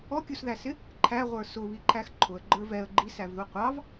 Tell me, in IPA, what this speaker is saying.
ɔkʲusðæsɪ | ǃʰæʁʷə˞ sʊβiǃʰæx ǃʰʊə̯ɡ͡ǃə˞ vɛə̯ ɡ͡ǃisævðu qʷɑv

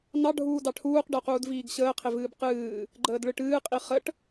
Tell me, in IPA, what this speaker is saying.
nɑ ɖʱuːdɑʈʰuːq ɖəu̯quːdviːɡɕəː qʰevɨːbqɨː | ɡ͡ǃəːdɭɨʈɨː qʼiχəʈ

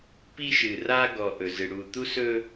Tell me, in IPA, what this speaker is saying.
pi˦ʃɨ˨ ra˦ɡɔ˨ ʔɵ˨zɨ˨ ɽu˨t̪u˦sɵ˦

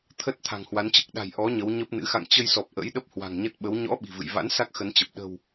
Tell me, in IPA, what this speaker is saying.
t̪ʰə˦˥t̚ t̪ʰa̤˨˩ŋhwa˨˦nt͡ɕɨ˦˥k̚ ɗa̤˨˩jʔɔ˨˦ ɲə˨˦wɲə˦˥p̚nɨ̰˧˥ xa̰˧˨ŋt͡ɕə˧jsɔ˨˩p̚ ʔə̰˧˥j ɗə˦˥p̚hwa̤˨˩ŋ ɲə˦˥t̚ɓə˨˦w ɲɔ̰˧˥ ɓi̤˨˩vɨ̰˧˨j va̰˧˥nsa˦˥k̚ xə˨˦nt͡ɕə˨˩p̚ ɗə̤˨˩w

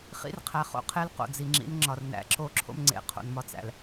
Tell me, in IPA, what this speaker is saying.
χḭ˦rqʰæ˨χo̰˦qʰe˦l qo̰˨d͡zi˨ŋ͡ǁḭ˨˦nŋ͡ǁɒ˨r næ̰˨ǁo˦ǁʰo̰˦mŋ͡ǀḛ˨ qʰo̰˨nmɒ˦t͡sæ̰˨l

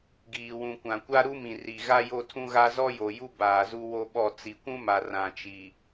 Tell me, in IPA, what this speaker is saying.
ɡiː˨wũ˨ kʷã˨kʷa˦ɾu˦mĩ˨ ri˨ ɣa˦ jo˦tʰũ˦ɣa˦ zɔ˦jo˨ju˦ baː˨zu˦wo˦ɓɔ˦˨ t͡si˨kʷũ˦ma˨ rã˨t͡ʃi˨

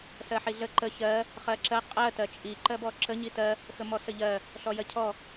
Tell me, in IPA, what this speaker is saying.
sɜħiɮə ǃə çɜ | χɜǁɜ qʼɜ tɜt͡ʃʼi ǃɜbɔǁə ɲitɜ | xəmɔsəʎɜ | ɬɔjɜcʰɔ

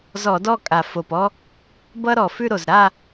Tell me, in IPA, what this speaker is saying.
zɔ˧˩˧dɔ˦˨ kʼa˩fo˩p ɔ˦ | bʌ˦ɾɔ˩fʉ˦˨ɾo˩z ɾa˦˨

